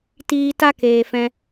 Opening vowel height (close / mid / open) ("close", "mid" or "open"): close